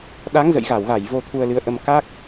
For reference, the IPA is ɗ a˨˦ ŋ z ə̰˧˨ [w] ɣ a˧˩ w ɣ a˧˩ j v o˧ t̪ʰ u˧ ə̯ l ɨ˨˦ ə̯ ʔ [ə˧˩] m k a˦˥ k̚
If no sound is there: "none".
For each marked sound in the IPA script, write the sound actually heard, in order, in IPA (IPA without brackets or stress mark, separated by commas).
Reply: j, ə˧